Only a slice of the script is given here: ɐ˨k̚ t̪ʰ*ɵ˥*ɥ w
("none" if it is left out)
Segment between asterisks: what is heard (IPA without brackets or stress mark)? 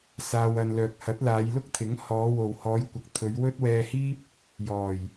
ɵ˨˧